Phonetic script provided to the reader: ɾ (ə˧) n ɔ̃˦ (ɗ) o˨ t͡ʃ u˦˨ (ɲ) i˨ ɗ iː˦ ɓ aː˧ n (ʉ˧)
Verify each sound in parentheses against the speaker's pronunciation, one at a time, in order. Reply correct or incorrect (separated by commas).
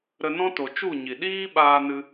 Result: correct, incorrect, correct, incorrect